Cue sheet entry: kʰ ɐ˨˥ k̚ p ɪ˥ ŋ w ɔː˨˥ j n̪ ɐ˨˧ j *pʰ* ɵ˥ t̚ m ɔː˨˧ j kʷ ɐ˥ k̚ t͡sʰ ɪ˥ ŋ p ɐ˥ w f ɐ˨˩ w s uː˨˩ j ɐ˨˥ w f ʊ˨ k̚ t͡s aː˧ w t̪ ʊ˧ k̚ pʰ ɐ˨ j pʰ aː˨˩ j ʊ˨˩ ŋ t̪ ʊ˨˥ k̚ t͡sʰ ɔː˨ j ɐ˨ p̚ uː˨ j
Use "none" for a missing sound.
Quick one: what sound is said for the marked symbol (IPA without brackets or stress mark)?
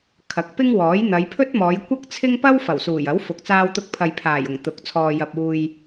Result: pʰ